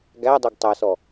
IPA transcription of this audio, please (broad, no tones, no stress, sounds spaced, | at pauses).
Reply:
ɡ æ dˤ e ɡ tˤ æ s ɔ